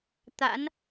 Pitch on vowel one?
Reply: rising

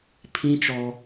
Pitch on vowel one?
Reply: high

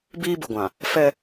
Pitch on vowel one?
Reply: high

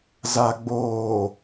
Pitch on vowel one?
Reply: low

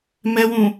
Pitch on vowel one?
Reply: low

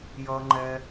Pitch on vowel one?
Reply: low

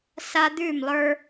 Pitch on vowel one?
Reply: high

